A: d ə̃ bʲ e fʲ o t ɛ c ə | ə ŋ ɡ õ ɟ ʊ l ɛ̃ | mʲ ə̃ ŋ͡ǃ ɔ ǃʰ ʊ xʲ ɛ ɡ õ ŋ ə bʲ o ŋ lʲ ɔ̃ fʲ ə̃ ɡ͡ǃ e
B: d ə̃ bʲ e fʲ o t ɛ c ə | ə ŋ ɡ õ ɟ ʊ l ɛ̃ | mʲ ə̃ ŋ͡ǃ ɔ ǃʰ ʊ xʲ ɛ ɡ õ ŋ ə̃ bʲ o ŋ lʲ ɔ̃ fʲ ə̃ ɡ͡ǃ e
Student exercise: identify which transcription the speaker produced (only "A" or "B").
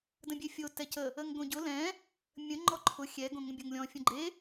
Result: B